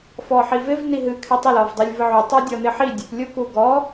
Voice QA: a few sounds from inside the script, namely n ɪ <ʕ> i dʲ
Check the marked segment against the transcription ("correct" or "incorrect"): incorrect